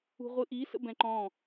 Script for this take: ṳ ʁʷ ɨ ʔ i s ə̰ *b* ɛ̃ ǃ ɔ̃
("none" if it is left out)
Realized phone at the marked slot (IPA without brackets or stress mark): b